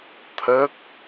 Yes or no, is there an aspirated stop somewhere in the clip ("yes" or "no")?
yes